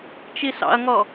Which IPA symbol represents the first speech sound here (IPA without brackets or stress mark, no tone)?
t͡ʃ